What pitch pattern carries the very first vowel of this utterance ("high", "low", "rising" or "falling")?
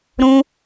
high